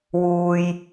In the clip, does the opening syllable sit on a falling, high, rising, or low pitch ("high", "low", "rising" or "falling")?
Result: low